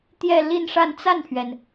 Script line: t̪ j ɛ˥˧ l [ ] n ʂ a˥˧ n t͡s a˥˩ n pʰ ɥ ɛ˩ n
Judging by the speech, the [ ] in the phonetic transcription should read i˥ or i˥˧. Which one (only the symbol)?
i˥˧